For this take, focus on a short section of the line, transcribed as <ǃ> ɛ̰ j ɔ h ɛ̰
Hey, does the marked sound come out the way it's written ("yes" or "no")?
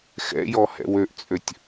no